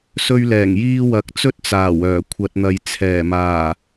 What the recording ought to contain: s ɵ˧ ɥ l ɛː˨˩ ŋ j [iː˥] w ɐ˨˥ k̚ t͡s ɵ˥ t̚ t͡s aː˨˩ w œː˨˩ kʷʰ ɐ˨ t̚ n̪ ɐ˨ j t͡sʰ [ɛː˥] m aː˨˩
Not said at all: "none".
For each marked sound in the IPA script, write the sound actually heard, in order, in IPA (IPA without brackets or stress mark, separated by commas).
iː˧, ɛː˨˩